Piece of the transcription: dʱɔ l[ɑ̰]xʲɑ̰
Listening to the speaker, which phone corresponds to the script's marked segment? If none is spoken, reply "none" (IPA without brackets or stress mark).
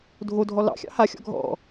ɑ̰